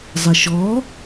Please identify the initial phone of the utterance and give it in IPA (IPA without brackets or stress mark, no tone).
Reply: zˤ